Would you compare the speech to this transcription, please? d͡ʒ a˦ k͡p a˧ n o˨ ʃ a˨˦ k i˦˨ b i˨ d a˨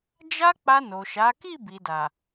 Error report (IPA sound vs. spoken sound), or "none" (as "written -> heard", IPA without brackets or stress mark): none